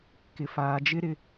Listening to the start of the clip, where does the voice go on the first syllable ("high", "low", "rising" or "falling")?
low